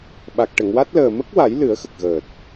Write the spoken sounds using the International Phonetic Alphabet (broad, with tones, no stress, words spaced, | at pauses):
ɓa˨˩k̚ʈə˨˩˨ŋwa˦˥t̚ləː˨˩ mə˦˥k̚wa˨˩˦j lɨ˨˩˦ə̯xə˨˩k̚ɣəː˨˩t̚